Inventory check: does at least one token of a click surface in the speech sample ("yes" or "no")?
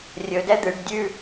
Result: no